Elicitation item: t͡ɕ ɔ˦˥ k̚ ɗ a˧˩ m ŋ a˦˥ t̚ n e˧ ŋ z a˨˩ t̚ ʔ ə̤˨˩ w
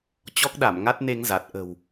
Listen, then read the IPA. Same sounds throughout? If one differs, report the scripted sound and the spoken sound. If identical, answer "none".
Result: none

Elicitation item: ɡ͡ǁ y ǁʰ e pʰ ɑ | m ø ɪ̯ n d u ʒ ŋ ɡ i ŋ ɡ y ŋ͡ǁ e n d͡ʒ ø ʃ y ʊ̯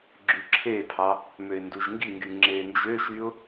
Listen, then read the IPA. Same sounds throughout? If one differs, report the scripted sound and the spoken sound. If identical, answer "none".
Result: none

